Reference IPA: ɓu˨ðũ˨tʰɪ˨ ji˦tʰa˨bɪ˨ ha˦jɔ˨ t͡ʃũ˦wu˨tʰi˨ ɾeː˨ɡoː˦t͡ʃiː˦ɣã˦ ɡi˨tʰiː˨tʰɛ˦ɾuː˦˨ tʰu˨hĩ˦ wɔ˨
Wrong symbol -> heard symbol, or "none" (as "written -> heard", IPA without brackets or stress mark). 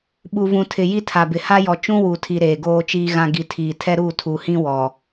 ð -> v